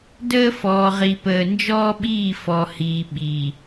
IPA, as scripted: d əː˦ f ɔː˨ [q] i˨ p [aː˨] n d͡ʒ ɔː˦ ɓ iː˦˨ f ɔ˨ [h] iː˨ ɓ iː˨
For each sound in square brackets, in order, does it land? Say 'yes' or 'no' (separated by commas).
no, no, yes